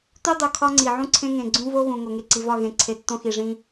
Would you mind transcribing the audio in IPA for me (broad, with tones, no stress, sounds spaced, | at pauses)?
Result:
t u˦ dˤ u˨ kʰ ɒ˦ ŋ͡ǀ i˨ ʕ ũ˦ ǀʰ ẽ˦ ŋ ẽ˨ ɡ͡ǀ ũ˦ v o˦ ɣ ũ˨ ŋ o˨ ŋ e˨ ǀ i˨ v ɒ˦˨ ɣ ẽ˨ ǀʰ e˨ tː õ˦ x i˨ ʐ ĩ˦